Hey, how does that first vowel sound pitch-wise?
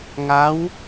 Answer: rising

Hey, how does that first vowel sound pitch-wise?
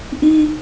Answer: high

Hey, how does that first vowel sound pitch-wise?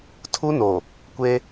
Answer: high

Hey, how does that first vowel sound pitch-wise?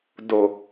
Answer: low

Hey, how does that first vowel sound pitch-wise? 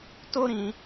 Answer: high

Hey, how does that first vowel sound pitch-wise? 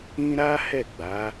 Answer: high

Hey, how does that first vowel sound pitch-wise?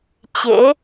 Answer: rising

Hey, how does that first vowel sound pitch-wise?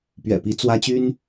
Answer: low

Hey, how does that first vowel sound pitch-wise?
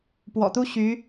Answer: low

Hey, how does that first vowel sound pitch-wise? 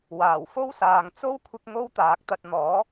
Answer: low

